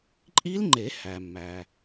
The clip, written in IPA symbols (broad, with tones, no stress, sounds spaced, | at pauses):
ǃʼ i˦˥ l ŋ͡ǃ e˨˩˦ h æ˩ mː æ˩